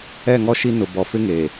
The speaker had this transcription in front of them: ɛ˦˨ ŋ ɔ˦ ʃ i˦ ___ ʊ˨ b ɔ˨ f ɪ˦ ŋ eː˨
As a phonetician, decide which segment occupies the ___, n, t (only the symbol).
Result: n